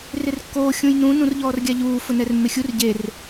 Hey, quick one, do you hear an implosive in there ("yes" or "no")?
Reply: no